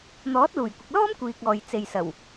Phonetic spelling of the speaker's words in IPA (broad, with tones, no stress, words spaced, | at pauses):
n̪ɔː˨˥t̚luː˨˩jkʷɪ˨k̚lɔː˥m kʷiː˨k̚ɔː˨j t͡se˨jsɐ˨˩w